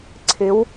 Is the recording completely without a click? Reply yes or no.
no